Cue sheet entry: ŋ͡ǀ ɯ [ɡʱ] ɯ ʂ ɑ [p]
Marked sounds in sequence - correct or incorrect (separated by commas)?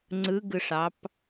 incorrect, correct